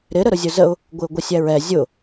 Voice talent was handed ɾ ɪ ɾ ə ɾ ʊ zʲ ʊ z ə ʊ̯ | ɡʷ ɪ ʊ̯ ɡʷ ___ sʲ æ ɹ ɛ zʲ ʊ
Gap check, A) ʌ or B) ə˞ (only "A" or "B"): A